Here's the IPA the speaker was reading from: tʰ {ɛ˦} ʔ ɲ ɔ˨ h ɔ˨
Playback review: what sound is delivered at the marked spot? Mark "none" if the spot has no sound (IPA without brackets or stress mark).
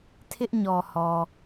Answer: ɪ˦